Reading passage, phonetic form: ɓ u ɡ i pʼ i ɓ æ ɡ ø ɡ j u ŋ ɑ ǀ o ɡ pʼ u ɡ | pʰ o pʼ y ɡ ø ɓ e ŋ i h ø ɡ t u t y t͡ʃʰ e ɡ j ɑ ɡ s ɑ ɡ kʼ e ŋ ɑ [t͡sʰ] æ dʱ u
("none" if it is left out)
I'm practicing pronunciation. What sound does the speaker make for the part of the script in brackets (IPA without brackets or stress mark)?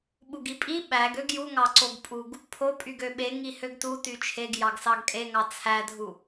t͡sʰ